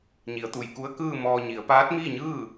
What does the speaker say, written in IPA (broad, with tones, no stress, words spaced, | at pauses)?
ɲi˩˧ə̯t̪u˩jku˧˥ə̯ kɯː˥˨ mɔː˧ɲi˩˧ə̯ paː˧˥t̚miː˥˨ɲɯː˥˨